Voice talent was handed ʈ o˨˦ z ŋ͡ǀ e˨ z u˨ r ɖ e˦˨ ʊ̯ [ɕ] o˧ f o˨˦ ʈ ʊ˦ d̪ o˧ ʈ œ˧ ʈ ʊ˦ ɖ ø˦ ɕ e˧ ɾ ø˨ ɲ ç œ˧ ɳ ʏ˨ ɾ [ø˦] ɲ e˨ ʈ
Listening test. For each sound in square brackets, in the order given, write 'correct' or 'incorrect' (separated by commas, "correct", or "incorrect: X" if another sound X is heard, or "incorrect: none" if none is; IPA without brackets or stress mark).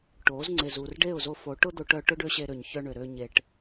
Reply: incorrect: z, incorrect: ø˧